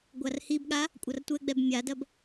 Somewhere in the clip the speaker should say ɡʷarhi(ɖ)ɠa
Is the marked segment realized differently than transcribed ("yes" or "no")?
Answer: yes